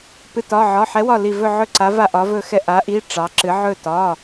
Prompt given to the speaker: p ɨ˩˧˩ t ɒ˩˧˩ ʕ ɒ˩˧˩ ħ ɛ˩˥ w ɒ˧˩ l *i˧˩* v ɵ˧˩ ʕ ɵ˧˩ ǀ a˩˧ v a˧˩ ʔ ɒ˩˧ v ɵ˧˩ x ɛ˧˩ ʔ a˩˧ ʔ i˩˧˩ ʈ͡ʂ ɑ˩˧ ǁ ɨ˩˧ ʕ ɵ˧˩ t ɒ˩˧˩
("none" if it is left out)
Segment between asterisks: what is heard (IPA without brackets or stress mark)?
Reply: i˧˩